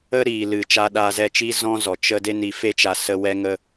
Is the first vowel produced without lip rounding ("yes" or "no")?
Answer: yes